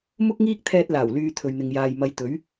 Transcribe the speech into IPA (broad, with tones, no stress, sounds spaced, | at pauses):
m ʊ˥ k̚ ŋ iː˥ k̚ t̪ʰ ɛː˧ t̚ l aː˨˩ w l yː˧ t̪ʰ ɵ˨ ɥ n̪ ɪ˨ ŋ j aː˨ j m ɐ˨˧ j t̪ ɵ˨˥ ɥ